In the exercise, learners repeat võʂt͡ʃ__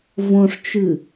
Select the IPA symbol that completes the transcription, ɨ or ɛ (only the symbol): ɨ